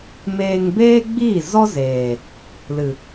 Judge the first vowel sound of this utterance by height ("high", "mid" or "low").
mid